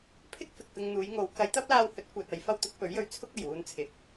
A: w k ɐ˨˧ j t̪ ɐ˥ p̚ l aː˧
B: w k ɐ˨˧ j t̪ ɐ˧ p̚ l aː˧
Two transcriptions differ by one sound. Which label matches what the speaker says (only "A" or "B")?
A